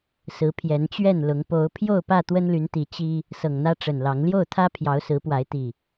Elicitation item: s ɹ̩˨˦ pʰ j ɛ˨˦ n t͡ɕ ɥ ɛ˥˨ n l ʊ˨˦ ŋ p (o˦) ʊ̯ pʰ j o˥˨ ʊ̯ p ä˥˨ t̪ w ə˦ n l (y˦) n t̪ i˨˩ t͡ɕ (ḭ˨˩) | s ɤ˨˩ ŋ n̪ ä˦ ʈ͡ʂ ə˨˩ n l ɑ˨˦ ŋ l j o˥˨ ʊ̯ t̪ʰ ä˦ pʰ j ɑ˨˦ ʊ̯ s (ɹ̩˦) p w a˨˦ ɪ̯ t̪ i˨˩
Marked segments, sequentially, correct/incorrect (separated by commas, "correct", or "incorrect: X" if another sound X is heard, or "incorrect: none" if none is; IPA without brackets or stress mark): incorrect: o˨˦, incorrect: y˨˦, incorrect: i˦, incorrect: ɹ̩˨˦